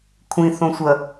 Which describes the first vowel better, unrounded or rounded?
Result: unrounded